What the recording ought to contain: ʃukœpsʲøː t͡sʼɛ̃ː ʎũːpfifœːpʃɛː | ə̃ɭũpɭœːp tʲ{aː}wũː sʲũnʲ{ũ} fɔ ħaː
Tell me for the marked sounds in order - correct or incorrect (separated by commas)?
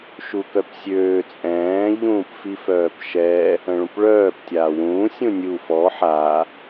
correct, incorrect